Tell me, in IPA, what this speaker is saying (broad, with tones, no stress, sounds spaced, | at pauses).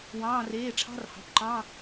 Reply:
w ɑ̃ː˩˧˩ r eː˩˧˩ ʈ͡ʂʰ ɑ̤˧˥˧ r h ɑ̤˩˧˩ p ǃ ɑ̃˧˥˧